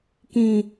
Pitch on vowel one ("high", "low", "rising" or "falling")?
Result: low